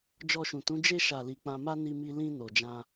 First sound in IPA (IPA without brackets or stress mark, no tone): d͡ʒ